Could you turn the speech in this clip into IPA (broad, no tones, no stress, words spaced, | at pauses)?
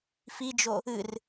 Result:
fid͡ʒo | ɨr